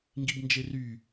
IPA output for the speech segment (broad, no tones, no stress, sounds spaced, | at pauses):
ŋ ɡ i b n d͡ʒ e r y